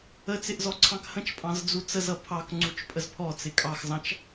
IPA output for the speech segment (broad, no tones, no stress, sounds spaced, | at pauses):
ə t͡s ɪ ʔ z ɔ ǀʰ ɑ̃ k h ə̃ t͡ʃ pʼ ɑ̃ z d͡z u t͡s ə z ʌ pʰ ɑ k ŋ͡ǀ u t͡ʃ pʼ ə z pʰ ɔ t͡s ɪ kʼ ɑ x z ɑ̃ t͡ʃ